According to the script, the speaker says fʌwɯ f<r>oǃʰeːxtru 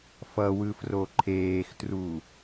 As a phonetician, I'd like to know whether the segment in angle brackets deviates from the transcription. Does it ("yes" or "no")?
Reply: no